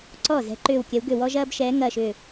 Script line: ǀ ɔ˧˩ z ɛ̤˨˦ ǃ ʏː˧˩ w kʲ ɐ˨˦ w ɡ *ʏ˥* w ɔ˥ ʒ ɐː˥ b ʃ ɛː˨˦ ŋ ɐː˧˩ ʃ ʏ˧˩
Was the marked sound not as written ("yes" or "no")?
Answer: yes